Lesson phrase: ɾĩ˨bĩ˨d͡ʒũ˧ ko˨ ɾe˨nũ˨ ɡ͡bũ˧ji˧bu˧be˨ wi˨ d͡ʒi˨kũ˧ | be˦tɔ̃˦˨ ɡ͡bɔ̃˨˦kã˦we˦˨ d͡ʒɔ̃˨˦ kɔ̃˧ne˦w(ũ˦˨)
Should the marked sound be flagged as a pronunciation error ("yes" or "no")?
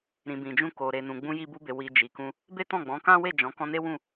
no